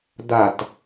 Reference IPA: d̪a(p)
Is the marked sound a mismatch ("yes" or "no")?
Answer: yes